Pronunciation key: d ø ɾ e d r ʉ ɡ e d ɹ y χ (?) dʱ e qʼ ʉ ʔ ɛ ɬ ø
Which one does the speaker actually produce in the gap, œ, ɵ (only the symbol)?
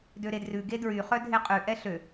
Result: œ